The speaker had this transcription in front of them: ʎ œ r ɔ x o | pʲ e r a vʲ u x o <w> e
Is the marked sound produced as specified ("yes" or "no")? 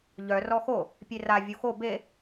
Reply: no